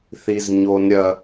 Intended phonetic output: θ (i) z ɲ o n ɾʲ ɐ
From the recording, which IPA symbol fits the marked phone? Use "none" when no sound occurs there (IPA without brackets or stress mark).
i